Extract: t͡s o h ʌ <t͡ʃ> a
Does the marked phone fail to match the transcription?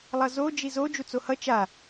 no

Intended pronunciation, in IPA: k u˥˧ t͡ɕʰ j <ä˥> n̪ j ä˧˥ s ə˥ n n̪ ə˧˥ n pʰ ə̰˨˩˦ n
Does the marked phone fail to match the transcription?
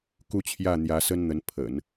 yes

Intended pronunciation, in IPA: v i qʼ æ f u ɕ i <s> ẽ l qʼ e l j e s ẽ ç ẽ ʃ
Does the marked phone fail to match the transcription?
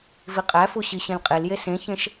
yes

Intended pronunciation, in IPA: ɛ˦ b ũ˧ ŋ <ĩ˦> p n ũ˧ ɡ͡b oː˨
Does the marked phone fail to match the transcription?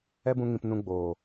yes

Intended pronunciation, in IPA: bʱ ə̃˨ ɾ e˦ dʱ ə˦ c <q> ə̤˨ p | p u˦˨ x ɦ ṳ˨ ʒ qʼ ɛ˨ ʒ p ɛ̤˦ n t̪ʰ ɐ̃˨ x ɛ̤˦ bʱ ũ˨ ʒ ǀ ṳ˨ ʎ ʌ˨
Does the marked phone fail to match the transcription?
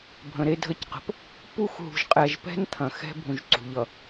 no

